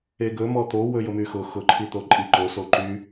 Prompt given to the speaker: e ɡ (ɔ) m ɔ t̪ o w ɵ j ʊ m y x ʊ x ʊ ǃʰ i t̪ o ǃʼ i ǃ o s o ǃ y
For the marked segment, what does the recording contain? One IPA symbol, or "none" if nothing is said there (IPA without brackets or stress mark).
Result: ɵ